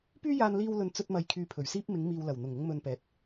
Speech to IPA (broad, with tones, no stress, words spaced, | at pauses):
pyː˥jaː˧nliː˧wlɵ˨n t͡sɵ˧t̚mɐ˨j kʰyː˧pʰɵ˨˩ɥsiː˥p̚ mɪ˨˧ŋmiː˨wlɐ˨˩w n̪ʊ˨˩ŋʊ˧ŋmɵ˨n pɛː˨t̚